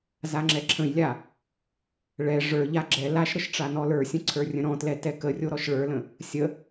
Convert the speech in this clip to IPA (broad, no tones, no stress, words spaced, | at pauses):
zaŋ͡ǁɛǁʰə̃jlʲa | ɭɛ ʐə˞ʎa ɡ͡ǁɛ laʃɾəʃ ʈ͡ʂanɔlə˞sʲə̃ ǀʰə˞rʲə̃ɾɔ̃tlɛ tɛkərʲo ɾɔʃɭə˞lə̃ | sʲə